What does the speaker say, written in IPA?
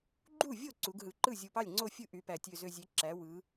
ɡ͡ǃ u˥˩ vʲ o˥˩ ǀ u˩˧ ɡ ɦ ɯ˩˧ ǃ ɯ˥˩ zʲ u˨˩ p ɑ˥˩ lʲ ŋ͡ǀ o˥˩ fʲ ɯ˥˩ ʔ y˩˧ p æ˨˩ tʲ ø˨˩ z ø˨˩ zʲ e˩˧ ǁ æ˩˧ w ɯ˩˧

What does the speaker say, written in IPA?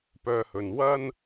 p œː˧ h ɵ˨ n w ɐ˥ n

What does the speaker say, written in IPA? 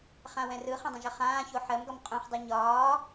χ ã w ɛ̃ r ɯ χ ə̃ dˤ ə̃ ʒ ə χ ãː ç o ħ ɜ m ɡ ɒ m qʼ ũ χ dˤ a ɲ ɒː

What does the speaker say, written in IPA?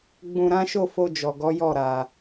ɡ͡b ũ˧ ɾ ã˦ ʃ o˦˨ f o˧ d͡ʒ ɔ˨ ɡ ɔ˨˦ j ɔ˦˨ ɾ a˧

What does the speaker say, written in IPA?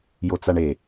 j o t͡s a ɳ e

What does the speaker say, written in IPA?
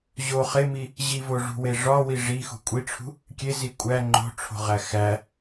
ʑ o χ e m i | ʑ i v o ʐ ṳ w e ʐ ɒ w i ʐ i x ṳ kʷʼ i ʈ͡ʂʰ ṳ | kʲ e z i kʷʼ æ ŋ͡ǃ o̤ ʈ͡ʂʰ o̤ ʁ æ x æ

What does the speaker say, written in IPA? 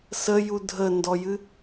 s ə j u dʱ ə n d ɔ j ɨ

